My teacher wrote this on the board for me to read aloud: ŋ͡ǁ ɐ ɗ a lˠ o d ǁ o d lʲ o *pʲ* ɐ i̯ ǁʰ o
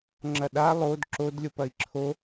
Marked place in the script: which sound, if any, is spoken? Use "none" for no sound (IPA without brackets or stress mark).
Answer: p